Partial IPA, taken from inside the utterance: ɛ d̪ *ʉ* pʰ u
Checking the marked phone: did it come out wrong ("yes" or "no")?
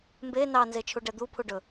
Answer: yes